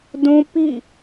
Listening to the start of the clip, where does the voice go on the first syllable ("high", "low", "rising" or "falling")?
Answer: high